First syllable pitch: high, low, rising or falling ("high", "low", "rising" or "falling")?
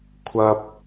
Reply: high